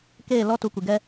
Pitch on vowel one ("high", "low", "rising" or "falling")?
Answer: falling